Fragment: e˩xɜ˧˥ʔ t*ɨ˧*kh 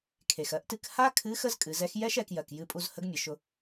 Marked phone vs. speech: correct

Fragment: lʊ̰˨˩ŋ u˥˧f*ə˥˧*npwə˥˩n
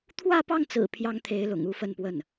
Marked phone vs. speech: correct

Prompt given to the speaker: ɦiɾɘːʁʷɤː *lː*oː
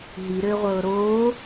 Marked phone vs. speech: incorrect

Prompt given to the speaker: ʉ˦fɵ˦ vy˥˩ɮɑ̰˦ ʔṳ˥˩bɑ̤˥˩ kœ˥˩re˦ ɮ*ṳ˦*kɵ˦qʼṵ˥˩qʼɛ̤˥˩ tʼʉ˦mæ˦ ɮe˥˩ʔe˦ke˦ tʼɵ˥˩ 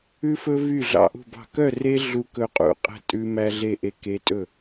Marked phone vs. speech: incorrect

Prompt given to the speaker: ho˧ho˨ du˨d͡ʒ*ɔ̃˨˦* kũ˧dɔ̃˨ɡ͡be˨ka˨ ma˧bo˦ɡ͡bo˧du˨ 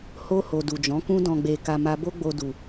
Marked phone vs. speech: correct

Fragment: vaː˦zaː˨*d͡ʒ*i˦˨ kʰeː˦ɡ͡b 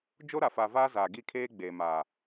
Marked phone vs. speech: incorrect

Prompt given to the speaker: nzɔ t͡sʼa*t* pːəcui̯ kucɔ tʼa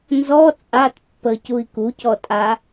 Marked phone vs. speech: correct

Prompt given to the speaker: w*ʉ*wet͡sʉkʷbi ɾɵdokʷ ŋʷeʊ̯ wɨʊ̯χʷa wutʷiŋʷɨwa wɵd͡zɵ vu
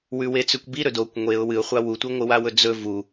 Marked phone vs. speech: correct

